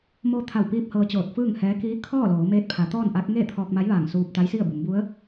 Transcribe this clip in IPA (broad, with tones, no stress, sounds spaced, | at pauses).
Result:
m oː˧ t̪ʰ a˧˩ w p iː˧ p̚ h ɤː˧ t͡ɕ oː˧˩ t̚ f ɯː˥˨ ŋ h ɛː˧˥ k iː˧˥ kʰ ɔː˥˨ l oː˩˧ m eː˧ t̚ pʰ a˩˧ t̪ ɔː˥˨ n ʔ a˧˥ k̚ ŋ eː˥˨ t̪ʰ ɔː˧ k̚ m a˧˥ j ʋ aː˧˩ ŋ s uː˧ p̚ t̪ a˧˥ j s i˥˨ ə̯ b u˩˧ m b u˧˥ ə̯